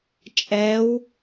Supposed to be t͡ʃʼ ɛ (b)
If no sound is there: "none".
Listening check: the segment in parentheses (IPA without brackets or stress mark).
w